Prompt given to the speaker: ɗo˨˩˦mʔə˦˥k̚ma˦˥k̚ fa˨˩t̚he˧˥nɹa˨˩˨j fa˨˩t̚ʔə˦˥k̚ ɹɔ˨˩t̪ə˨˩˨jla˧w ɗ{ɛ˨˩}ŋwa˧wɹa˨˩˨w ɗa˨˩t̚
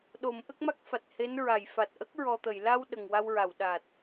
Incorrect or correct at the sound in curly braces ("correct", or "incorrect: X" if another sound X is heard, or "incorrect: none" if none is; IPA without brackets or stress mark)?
incorrect: ə˨˩